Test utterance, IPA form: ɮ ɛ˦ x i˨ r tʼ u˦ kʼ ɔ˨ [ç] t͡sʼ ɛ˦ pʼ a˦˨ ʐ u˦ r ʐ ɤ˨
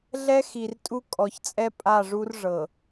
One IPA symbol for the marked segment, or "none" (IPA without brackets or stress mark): ç